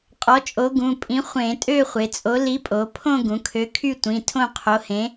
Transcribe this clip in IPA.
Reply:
qʼ ɔ˨˥ t͡ʃʼ o˨˥ ɡ ũ˩˧˩ pʼ ĩ˨˥ χʷ ẽ˧˩˧ tʼ ø˥˧ χʷ e˩˧ t͡sʼ o˨˥ l i˨˥ pʼ o˩˧ pʰ õ˥˧ ɡ ũ˩˧ kʰ ø˨˥ kʰ y˥˧ tʷ ĩ˩˧˩ tʰ õ˥˧ qʰ o˨˥ h ẽ˨˥

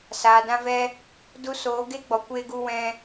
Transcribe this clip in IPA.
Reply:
s aː˨ d ã˧ v ɛ˧ | d u˧ s oː˨˦ ɡ e˦ ɡ͡b ɔ˨ kʷ eː˧ ɡ u˧ w ɛ̃˧

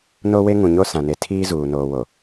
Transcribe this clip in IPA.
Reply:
n o˦ w e˦ ŋ ũ˨ ɲ o˦ s ã˨ n e˨ tʰ iː˦ z uː˨ n oː˨ w o˨

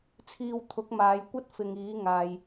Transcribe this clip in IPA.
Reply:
t͡sʰ iː˧ w t̪ʰ ʊ˨˥ k̚ m aː˨˧ j kʷ ɐ˥ t̚ f ɪ˨ ŋ iː˨˥ ŋ aː˨ j

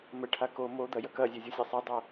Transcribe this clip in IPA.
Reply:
m ə ʈʰ a k o m o d̪ ɐ j ɐ k ɐ zʲ e zʲ o sʲ a sˤ ə dˤ o

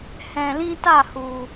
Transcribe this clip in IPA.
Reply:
h ɛ̃˨ l ĩ˧ t a˦˨ h u˨

